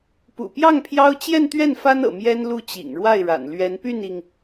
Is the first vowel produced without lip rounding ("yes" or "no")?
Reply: no